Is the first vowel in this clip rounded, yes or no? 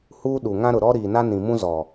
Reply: yes